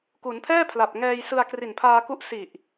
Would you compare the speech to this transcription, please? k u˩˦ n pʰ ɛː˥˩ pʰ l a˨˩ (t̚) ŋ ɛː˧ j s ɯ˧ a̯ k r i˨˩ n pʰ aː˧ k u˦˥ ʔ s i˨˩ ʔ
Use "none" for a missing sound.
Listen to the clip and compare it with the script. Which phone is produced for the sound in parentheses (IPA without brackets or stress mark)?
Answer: p̚